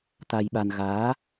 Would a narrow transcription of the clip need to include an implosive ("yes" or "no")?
yes